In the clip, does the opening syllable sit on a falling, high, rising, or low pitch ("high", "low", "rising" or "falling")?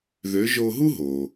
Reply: rising